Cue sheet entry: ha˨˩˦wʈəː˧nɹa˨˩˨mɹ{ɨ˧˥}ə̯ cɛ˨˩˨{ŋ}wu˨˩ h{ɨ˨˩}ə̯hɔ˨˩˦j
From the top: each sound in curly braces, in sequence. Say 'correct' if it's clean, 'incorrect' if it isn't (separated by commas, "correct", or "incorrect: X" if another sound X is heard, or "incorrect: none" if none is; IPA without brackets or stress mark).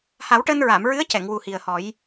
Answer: correct, correct, incorrect: i˨˩